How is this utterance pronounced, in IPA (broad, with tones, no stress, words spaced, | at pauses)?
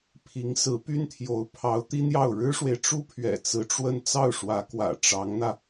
pʰi˧˥ŋsɹ̩˧˥py˥nt̪ʰjo˧˥ʊ̯ pʰɑ˧˥ʊ̯t̪i˥n̪jɑ˥˩ʊ̯ ɻɻ̩˥ʂwe˨ɪ̯ʈ͡ʂu˥pʰɥɛ̰˨˩ t͡sɹ̩˧˥ʈ͡ʂwə˥˧n t͡sɑ˥˩ʊ̯ʂwä˧˥kwä̰˨˩ ʈ͡ʂɑ˧˥ŋn̪ä˧